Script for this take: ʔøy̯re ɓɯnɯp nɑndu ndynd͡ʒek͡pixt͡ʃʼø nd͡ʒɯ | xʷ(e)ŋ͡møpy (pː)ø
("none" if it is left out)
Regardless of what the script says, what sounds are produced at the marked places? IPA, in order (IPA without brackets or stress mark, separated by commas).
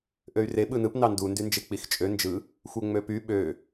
e, ɓ